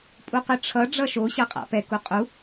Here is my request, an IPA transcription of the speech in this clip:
pʼ u q ɯ ʈ͡ʂʰ ʌ ɖ͡ʐ ʌ ʃ o ɕ ʌ qʼ a̰ p ɛ k u qʼ u

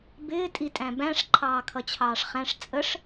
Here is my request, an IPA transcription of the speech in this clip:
b ɪː tʼ i tʼ æ̃ b æ̃ ʂ ǃʰ ɑː kʰ ʌ t͡ɕʰ ɑː ʂ χ æ̃ ʂ t͡sʼ ə ʂ

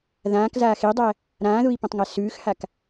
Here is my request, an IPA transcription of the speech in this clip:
ð ãː k z aː x e dˤ æ | ɾ ãː ð u i̯ p õ tˤ ŋ æ s ʉː x h a k

